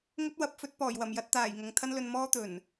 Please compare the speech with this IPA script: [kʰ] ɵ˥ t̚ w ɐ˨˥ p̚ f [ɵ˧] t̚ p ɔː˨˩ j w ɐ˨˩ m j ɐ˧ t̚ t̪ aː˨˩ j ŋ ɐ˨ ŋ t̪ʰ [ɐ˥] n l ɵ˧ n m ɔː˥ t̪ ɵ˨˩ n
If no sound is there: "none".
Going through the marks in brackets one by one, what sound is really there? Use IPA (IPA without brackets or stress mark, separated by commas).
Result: ŋ, ɵ˧, ɐ˥